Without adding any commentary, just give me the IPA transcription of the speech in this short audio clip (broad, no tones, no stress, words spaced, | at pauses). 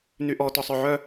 nyʔɔ tɔsˤœʕœ